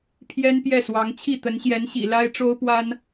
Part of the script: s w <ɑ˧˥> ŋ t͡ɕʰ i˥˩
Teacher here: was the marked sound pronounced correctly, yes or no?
yes